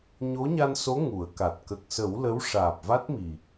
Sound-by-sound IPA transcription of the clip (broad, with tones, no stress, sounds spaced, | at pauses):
ɲ o˧˥ ɲ a˧ n s o˧˥ ŋ u˨˩˦ ə̯ k a˨˩ t̚ k ə˨˩ k̚ s ə˨˩˦ w l ə˧˥ w ʂ aː˨˩ p̚ v a˦˥ t̚ m i˨˩